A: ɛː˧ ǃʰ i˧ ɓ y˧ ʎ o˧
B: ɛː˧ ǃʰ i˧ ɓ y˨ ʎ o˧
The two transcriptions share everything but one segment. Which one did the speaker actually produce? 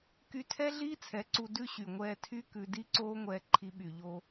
B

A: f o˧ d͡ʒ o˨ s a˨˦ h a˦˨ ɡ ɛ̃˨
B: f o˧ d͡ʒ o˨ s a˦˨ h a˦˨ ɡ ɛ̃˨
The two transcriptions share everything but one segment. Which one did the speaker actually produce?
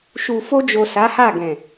A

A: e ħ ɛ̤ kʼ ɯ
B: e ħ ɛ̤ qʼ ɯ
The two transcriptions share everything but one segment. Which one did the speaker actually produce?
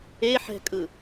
A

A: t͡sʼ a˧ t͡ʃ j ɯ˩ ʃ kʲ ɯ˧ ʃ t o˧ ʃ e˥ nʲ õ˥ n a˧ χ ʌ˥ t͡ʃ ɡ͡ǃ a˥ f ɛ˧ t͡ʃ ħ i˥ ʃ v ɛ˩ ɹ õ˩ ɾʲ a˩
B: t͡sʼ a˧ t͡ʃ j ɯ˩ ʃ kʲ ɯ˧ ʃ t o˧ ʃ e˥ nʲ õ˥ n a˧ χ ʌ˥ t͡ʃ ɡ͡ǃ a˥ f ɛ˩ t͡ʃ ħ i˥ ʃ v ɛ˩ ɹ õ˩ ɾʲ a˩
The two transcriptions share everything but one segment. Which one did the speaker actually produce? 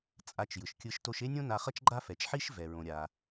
B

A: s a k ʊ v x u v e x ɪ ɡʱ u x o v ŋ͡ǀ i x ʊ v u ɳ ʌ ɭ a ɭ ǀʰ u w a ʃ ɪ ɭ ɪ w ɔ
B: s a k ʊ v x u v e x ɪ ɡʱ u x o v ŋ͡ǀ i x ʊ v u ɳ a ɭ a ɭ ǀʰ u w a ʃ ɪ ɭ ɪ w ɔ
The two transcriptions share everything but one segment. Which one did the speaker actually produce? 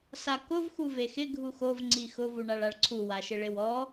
B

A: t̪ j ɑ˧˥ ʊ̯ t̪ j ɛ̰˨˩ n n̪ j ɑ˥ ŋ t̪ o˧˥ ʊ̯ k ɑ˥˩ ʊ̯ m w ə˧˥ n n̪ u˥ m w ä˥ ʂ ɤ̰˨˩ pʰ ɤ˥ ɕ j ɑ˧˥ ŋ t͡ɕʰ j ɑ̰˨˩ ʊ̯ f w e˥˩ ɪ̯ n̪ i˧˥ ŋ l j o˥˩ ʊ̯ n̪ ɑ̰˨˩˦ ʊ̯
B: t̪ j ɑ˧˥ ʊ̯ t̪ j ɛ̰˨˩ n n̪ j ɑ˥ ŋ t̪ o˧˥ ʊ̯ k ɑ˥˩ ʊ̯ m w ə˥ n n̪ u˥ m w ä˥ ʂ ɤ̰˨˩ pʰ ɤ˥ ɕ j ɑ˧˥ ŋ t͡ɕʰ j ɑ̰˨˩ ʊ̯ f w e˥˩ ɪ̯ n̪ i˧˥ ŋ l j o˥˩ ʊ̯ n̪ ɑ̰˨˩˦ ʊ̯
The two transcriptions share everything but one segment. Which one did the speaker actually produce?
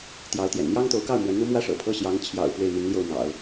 A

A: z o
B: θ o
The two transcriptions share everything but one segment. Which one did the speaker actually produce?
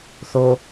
B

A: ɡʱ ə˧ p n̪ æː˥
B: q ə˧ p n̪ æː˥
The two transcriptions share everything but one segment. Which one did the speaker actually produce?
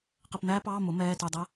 B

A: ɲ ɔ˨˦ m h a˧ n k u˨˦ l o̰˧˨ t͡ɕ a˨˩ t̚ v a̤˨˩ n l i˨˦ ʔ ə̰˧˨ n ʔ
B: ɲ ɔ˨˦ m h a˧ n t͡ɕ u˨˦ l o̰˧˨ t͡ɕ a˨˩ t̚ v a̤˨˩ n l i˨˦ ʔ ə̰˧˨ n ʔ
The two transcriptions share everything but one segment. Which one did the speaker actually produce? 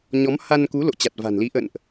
A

